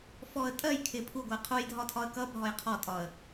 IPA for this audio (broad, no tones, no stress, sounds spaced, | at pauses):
f ɔ ə̯ tʼ ɜ j kʰ ɪ pʰ u ɡʷ ɪ ə̯ qʰ u j dʱ ɒ tʰ ɒ ə̯ k ʌ bʱ ɒ j qʰ ɔ tʼ ɒ ə̯